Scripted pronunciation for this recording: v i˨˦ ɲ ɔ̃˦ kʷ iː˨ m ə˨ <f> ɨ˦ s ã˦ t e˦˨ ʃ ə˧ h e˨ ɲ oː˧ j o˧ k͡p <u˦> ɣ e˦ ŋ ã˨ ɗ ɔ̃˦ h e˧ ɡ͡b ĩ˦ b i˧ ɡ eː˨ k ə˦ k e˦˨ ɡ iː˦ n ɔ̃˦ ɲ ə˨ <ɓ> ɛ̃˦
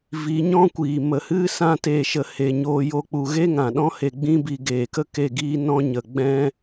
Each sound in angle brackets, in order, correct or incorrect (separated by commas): incorrect, incorrect, incorrect